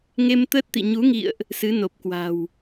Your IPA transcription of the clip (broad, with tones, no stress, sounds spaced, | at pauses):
ŋ e˧ m t̪ əː˦˥ t̚ t̪ ḭ˧˨ ɲ u˨˦ ŋ ḭ˧˨ ə̯ ʔ | s ɨ˨˦ n o˨˩ p̚ k w a̤˨˩ w